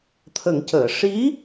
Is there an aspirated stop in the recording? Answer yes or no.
yes